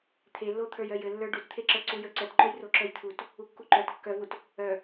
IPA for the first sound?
t̪ʰ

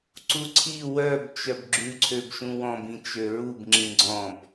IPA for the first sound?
ǀ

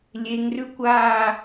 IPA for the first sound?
lʲ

